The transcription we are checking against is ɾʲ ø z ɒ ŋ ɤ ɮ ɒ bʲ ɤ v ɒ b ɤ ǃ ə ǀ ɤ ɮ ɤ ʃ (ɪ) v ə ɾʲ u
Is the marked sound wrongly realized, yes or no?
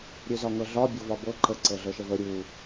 yes